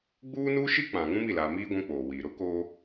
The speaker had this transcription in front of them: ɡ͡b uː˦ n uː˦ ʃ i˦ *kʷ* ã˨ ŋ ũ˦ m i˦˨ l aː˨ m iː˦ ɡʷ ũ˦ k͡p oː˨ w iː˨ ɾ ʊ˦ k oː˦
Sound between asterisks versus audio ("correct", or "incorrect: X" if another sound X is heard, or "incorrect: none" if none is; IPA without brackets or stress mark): incorrect: k͡p